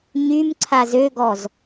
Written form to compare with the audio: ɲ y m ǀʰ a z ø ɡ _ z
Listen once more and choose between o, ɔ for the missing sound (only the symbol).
ɔ